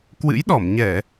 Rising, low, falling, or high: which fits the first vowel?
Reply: rising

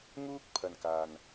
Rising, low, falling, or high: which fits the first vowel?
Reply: high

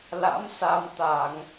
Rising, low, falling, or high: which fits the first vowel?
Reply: rising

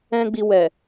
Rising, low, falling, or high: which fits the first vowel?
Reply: high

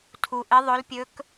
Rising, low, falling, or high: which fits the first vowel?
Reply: low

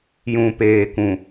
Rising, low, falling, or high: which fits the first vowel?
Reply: low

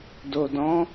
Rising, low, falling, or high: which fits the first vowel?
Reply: low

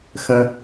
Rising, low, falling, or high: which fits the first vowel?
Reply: low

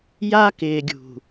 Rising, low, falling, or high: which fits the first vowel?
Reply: high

